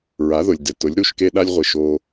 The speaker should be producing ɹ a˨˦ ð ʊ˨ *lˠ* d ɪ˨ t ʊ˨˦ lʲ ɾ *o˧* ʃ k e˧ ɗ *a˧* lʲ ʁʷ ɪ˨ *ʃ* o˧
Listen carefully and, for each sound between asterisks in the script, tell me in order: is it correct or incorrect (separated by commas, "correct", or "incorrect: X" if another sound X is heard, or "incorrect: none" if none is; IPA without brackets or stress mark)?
incorrect: lʲ, incorrect: u˧, correct, correct